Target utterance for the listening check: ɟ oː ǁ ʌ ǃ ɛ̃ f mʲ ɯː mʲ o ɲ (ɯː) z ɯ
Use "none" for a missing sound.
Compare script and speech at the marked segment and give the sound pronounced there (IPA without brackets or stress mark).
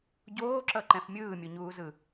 uː